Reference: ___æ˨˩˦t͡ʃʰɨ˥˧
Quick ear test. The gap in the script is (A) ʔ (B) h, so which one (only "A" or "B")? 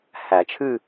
B